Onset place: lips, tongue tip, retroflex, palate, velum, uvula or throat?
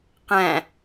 uvula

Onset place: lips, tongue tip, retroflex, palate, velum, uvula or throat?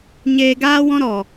palate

